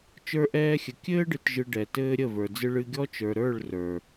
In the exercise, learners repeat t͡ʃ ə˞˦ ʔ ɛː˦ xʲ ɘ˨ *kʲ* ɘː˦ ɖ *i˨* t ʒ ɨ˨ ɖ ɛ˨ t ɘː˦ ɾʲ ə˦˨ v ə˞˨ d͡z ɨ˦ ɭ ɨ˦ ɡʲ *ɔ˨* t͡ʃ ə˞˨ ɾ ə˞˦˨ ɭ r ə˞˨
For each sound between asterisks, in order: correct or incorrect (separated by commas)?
correct, incorrect, incorrect